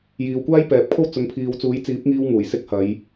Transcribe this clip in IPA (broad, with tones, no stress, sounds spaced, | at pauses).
j iː˨ w kʷ aː˥ j p ɛː˨ p̚ kʰ o˥ w t͡s ʊ˨˧ ŋ pʰ iː˨˧ w t͡s uː˨˥ j t͡s iː˨˥ p̚ ŋ iː˧ w ŋ uː˨˩ j s ɪ˧ k̚ h ɐ˨˧ j